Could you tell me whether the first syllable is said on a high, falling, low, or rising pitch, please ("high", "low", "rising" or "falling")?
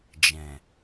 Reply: low